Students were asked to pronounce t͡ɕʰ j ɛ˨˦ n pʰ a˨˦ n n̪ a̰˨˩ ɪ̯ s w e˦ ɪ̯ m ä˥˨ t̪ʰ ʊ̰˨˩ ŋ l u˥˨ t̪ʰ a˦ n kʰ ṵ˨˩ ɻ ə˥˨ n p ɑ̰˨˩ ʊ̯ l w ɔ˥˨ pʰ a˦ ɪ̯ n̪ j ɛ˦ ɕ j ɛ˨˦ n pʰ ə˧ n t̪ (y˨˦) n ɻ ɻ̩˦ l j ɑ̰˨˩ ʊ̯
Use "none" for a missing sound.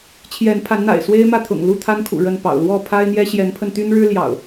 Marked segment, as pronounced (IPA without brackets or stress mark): y˦